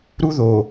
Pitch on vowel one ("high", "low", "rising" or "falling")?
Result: high